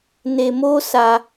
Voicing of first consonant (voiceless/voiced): voiced